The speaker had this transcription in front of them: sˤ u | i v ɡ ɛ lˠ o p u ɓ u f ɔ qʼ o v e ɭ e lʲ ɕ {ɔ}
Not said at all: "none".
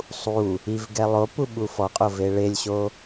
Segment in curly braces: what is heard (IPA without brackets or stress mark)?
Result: o